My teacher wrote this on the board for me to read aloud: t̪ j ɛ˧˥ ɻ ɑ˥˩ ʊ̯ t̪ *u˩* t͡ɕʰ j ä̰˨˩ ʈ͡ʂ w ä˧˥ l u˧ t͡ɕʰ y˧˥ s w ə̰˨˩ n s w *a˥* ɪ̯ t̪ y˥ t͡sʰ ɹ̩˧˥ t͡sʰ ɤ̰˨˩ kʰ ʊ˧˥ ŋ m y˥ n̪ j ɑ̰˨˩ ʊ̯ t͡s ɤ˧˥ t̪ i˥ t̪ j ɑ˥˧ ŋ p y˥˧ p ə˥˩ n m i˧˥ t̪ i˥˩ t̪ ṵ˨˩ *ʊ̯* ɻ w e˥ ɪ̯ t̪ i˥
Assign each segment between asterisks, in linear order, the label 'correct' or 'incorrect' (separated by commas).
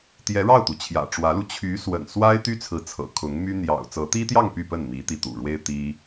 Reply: correct, correct, incorrect